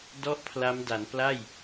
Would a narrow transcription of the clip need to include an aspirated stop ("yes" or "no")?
yes